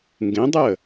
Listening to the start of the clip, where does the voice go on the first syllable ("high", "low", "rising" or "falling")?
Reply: rising